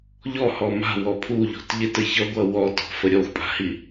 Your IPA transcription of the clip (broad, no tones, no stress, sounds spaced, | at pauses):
ʎ ɔ h ɔ m a̤ w ɔ pʰ u ʎ ɔ̤ t ʎ ɪ t ə ç ʌ ɡʷ ʌ w ɔ t ɔ̤ f ə ɾʲ ɔ xʷ pʼ a̤ h i